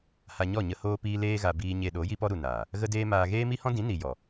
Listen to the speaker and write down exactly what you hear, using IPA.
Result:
h a˧ ɲ ɔ˦˨ ɲ ə˧ h oː˦ p iː˦ l eː˦ ɣ a˧ b iː˧ ɲ e˧ ɗ o˨˦ j i˦ p ɔ˦ ɾ u˨ n aː˨ | ɣ ə˦ d eː˦ m aː˧ ɣ eː˦ m i˦ h ɔ̃˦ d ĩ˨˦ n i˨ j ɔ˨

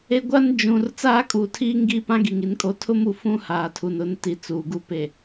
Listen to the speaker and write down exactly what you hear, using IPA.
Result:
e˨ ɡʷ a˦ n d͡ʒ ũ˨ r t͡s aː˦ kʼ uː˨ tʰ iː˦ ŋ ɡ i˦ p ã˦ ɡ i˨ ŋ i˨ n kʼ o˨ tʰ ʊ˦ m u˨ f ũ˦ h aː˨ tʰ u˨ n ʊ˨˦ n t i˨ t͡s uː˨ ɡ u˦ p e˨

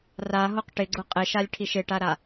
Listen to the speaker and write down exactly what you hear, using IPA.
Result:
r a ɦ o q ʈ ɪ ɡ͡ǀ ʊ qʼ ɪ ʃ a lʲ ʈʰ i ʃ ɪ ʈ a ɾ a

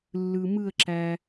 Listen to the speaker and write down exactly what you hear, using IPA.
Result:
lː ɯ˧ m ɯ˥˧ ə̯ ǁ æ˧

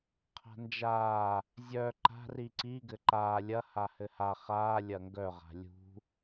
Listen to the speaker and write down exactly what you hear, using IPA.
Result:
qʰ a̤ n d͡ʒ aː | zʲ œ ǃ a̤ r i ǀ i ɡ ɘ ǃ aː lʲ ɐ h a h ɘ h a χ aː lʲ ɐ ŋ ɡ œ ʁ a̤ lʲ ṳ

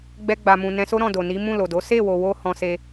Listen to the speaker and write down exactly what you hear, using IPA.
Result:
ɡ͡b ɛ˧ ɡ͡b a˨ m ũ˨ n ɛ̃˨˦ s o˦ ɾ ɔ̃˦˨ d o˨ n i˨˦ m ũ˦˨ l o˨ d o˨˦ s e˦˨ w o˨ w o˧ h ɔ̃˦ s e˦

